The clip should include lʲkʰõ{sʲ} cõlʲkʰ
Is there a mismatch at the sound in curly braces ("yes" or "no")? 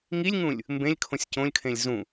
no